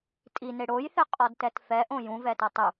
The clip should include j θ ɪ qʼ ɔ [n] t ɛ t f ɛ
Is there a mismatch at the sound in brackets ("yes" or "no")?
yes